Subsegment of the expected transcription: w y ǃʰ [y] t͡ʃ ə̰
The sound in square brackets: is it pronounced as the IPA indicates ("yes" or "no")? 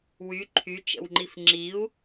yes